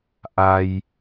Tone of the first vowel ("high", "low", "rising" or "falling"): low